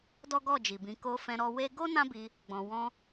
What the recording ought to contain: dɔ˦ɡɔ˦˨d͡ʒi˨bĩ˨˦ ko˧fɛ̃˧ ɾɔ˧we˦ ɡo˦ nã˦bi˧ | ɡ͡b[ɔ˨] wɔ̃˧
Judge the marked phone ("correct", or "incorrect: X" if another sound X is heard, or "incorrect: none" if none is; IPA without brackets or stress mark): incorrect: ɔ̃˨